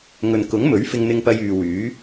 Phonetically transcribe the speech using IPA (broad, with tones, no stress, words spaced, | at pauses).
ŋɵ˨nkʊ˨˥ŋmɵ˨˥ɥ fɪ˧ŋn̪ɪ˧ŋpɐ˧j yː˨wyː˨˥